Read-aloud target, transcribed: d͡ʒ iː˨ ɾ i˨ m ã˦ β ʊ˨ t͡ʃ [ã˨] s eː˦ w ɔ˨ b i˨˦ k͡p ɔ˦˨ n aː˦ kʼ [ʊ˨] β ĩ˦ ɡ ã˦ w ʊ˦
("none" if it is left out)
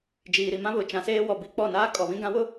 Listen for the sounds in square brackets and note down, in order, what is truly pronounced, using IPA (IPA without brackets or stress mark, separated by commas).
ã˨, ɔ˨